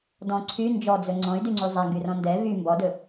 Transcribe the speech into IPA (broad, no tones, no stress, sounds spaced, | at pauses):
d ɔ̃ ǀʰ y n d͡ʒ ɔ d͡z ɵ ŋ͡ǀ ɔ̃ y̯ d y ŋ͡ǀ y zˤ æ ŋ ɡ y r ɔ̃ n d ɛ v y m b ɔ d ɵ